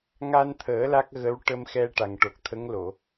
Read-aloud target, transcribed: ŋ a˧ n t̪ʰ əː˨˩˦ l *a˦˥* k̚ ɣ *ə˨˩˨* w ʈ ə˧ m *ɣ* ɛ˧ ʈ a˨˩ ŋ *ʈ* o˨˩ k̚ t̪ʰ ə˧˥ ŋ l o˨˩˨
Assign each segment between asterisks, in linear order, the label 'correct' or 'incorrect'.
correct, incorrect: ə˧˥, incorrect: x, correct

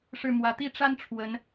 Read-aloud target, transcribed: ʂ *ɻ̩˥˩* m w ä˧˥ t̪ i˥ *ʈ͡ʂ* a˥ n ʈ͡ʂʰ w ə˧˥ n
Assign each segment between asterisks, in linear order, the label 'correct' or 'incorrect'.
correct, correct

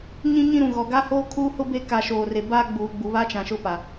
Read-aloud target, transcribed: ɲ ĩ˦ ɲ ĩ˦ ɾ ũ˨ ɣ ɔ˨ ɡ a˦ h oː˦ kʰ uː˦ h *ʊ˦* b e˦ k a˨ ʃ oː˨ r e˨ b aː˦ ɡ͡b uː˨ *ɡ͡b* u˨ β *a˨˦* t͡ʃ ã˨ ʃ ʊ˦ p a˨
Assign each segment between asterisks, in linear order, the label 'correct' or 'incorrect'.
correct, correct, incorrect: a˦

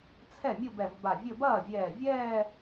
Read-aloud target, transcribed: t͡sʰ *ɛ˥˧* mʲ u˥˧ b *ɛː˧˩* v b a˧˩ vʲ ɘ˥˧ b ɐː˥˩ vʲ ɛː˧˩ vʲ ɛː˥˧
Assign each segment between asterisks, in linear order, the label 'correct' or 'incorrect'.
incorrect: ɛ˥˩, incorrect: ɛ˧˩

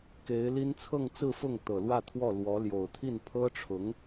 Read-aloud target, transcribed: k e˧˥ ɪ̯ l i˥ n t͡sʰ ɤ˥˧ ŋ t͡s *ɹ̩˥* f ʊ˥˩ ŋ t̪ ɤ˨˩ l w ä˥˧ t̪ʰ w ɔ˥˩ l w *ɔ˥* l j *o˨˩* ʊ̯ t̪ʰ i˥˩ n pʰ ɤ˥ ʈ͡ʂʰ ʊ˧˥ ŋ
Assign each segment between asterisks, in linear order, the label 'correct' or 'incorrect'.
incorrect: ɹ̩˥˧, incorrect: ɔ˧˥, correct

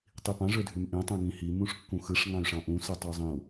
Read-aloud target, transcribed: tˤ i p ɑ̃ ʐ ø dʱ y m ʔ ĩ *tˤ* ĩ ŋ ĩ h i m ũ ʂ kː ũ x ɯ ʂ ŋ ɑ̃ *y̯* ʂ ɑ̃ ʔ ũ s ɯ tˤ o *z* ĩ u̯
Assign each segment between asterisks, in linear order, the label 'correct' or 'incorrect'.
correct, correct, incorrect: zˤ

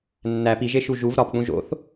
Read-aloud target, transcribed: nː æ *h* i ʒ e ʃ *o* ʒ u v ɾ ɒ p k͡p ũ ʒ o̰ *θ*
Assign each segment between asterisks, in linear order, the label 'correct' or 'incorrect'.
incorrect: p, incorrect: u, correct

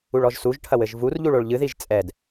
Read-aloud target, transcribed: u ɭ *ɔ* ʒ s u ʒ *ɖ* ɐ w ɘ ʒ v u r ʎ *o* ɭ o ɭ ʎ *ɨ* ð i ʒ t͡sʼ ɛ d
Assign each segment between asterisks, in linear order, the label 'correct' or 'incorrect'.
correct, incorrect: ʈʰ, incorrect: u, correct

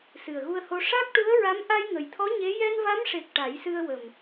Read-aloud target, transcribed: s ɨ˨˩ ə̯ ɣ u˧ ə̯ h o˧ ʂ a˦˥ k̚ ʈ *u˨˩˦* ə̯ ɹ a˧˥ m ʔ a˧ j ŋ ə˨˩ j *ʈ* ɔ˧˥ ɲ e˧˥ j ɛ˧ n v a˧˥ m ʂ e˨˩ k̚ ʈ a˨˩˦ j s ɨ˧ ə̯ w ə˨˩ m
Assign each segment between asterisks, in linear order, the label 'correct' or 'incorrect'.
incorrect: u˧˥, incorrect: t̪ʰ

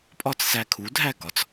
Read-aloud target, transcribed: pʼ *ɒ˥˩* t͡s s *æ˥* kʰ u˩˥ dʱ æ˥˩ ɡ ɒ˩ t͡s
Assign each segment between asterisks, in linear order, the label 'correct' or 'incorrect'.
correct, incorrect: æ˧

